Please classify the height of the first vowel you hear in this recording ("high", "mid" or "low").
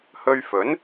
mid